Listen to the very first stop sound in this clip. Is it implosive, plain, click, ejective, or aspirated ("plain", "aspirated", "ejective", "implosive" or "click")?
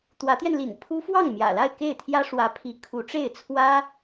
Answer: plain